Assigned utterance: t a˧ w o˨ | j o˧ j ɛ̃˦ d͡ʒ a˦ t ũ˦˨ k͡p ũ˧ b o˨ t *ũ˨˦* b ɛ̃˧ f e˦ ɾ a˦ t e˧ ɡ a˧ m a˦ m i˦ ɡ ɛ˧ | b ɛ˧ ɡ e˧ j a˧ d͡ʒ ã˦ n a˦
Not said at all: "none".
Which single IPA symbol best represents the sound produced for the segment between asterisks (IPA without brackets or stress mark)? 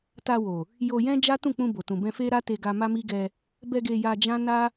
ũ˨